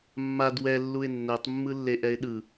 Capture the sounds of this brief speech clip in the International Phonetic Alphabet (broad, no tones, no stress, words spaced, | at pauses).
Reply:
mːad wɛlːuɪ̯ nːɛtˤmːɯlːeʔɛɪ̯ ɗɯ